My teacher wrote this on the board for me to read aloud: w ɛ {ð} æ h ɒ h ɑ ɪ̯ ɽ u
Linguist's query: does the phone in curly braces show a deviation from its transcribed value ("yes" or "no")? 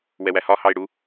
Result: yes